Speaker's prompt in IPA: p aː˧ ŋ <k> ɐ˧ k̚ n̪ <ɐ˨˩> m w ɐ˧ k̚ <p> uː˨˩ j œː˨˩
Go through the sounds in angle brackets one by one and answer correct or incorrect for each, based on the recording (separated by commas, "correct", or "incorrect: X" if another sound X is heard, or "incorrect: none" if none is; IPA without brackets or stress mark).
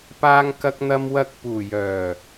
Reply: correct, incorrect: ɐ˧, correct